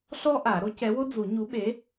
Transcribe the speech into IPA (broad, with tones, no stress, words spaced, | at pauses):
ɬɔ˥ʔa˨˩˦ ɾo˨˥cɛ˨˥wo˥ d͡zu˨˩˦ɲu˨˥ɓe˨˥